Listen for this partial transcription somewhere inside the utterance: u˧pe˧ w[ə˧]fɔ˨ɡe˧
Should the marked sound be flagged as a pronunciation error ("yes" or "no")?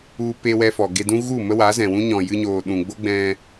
yes